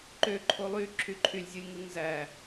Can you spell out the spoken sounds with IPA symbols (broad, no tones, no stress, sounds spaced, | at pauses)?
ǃ ø ǃʰ o lˠ y ǁʰ y ǃʰ y lʲ zʲ ɯ lʲ ŋ ɯ ŋ z æ